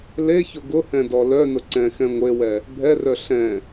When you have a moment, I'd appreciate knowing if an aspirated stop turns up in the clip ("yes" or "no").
no